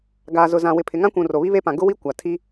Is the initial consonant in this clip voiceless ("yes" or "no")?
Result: no